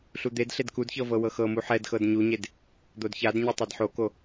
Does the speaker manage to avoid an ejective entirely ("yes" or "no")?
yes